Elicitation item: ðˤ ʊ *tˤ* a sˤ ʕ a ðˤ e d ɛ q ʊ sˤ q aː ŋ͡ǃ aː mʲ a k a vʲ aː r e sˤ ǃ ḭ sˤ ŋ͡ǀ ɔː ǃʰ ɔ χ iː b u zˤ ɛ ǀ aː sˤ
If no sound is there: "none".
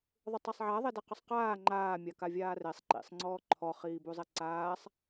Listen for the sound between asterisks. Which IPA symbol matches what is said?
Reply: tˤ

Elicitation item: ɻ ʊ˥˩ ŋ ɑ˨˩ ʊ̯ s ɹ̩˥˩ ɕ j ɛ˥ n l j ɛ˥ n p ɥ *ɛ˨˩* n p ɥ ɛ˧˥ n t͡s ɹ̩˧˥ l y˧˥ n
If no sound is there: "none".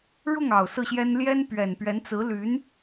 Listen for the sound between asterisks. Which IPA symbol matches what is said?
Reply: ɛ˨˩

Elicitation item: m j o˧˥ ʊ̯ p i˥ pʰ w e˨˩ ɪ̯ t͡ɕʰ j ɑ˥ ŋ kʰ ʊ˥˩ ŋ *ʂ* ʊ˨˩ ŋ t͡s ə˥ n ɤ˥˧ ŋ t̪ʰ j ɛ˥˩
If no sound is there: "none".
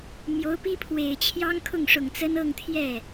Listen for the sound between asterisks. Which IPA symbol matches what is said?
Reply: ʂ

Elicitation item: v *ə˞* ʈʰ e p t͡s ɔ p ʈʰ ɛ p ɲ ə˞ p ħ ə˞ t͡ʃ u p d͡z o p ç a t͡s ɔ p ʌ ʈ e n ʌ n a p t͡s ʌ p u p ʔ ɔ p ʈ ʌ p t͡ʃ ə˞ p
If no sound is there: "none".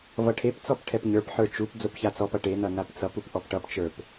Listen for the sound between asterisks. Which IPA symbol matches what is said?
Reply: ʌ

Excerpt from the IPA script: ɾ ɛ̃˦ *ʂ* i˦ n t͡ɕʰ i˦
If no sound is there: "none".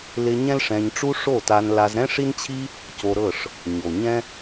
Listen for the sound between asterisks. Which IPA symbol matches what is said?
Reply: ʂ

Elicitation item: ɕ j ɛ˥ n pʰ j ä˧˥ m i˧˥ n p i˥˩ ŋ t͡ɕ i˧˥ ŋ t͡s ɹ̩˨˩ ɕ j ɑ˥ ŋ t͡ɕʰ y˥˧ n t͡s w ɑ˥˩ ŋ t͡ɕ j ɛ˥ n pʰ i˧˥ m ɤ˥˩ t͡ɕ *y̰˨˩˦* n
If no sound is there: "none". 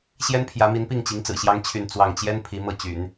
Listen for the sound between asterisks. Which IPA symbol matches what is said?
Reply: y̰˨˩˦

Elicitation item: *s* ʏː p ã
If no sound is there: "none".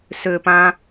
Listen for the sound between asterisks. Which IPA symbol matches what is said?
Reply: s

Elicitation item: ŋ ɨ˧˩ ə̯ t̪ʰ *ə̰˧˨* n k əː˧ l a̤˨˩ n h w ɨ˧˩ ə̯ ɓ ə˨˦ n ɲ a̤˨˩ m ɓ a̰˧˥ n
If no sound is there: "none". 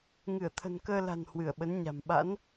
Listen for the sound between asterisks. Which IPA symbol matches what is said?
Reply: ə̤˨˩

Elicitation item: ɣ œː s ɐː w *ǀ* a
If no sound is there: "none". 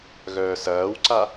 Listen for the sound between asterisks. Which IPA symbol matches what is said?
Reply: ǀ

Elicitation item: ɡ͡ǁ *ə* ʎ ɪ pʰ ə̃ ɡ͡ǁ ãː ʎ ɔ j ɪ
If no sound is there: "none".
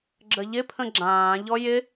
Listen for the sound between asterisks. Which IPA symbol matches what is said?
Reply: ə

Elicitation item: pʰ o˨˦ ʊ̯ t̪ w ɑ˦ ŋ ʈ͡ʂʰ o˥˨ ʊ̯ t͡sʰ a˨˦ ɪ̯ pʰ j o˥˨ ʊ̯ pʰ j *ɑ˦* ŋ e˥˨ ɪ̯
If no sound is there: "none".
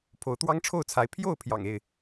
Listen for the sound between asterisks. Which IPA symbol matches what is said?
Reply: ɑ̰˨˩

